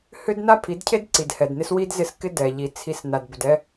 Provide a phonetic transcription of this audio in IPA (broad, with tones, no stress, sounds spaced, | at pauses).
h ʏ˦ d n a˦ pʰ i˨˦ d cʰ e˦ d ǀ i˨ d h ɛ˨ d n ɪ˦ s w i˦ d z ɪ˦˨ s k ɪ˦ d ɛ˨ ʎ i˨ t͡sʰ i˦˨ s n a˨ d b ʏ˨ d ɛ˦